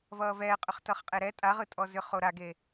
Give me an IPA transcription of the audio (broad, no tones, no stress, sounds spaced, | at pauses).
v ʌː v ɛː qʼ ʏ χ t ʌ χ qʼ e ɾ ɛ tʼ a ʁ ɯ tʼ ɔ z ʏ χ o ɾ a ɡ e